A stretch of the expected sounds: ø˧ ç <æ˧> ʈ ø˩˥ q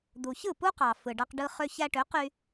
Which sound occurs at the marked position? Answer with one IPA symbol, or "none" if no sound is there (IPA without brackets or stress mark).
æ˧